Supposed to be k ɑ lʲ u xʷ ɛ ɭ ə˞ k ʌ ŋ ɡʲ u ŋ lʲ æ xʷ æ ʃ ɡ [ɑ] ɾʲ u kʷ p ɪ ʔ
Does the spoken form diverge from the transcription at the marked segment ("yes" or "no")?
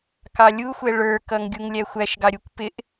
no